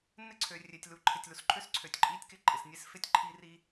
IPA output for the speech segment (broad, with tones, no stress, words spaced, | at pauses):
nɪ˦ ǀʰø˨rʲe˨tʲ lu˨ ǃʰɪ˨tʲlu˨sǃʰø˦s ǀʰø˨tʲǃʼi˦tʲkɪ˦ ǃʼɪ˨snʲe˦sfɪ˦tʲ ǃʰi˦ri˦